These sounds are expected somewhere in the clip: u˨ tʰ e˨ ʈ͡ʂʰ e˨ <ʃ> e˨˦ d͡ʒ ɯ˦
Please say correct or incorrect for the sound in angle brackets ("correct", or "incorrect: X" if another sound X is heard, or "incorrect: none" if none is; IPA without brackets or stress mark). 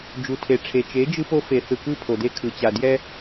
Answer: incorrect: t͡ʃ